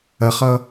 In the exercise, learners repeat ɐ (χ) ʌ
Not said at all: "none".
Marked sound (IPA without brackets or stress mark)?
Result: χ